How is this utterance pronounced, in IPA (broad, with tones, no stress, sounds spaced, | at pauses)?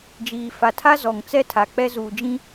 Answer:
d͡ʒ iː˨ f a˨ tʰ a˦ z ɔ˨ ŋ t͡s ɛ˦ tʰ a˨ k͡p ɛ˦ z uː˨ d͡ʒ ĩ˦